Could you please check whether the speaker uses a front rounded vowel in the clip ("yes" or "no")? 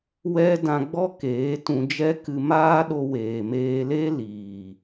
no